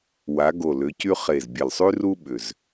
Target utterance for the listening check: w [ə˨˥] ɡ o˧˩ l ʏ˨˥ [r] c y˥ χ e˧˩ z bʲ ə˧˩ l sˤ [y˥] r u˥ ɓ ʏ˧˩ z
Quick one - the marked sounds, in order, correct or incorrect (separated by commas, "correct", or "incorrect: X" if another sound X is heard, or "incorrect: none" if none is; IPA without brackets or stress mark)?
incorrect: a˨˥, incorrect: none, correct